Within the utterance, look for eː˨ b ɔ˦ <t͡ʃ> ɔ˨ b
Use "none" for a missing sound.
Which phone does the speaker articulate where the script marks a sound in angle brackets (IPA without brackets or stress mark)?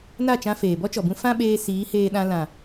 t͡ʃ